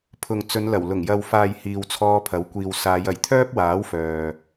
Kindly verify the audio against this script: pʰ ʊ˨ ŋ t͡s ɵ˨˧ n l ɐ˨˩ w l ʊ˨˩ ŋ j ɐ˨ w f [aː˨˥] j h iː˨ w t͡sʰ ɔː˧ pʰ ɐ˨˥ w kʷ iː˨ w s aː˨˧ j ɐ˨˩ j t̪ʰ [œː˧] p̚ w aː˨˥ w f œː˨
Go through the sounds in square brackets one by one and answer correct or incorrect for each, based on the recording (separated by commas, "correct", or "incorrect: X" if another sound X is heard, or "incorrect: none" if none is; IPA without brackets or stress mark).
incorrect: aː˨, incorrect: œː˥